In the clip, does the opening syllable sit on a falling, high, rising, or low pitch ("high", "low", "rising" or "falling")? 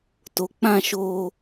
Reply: low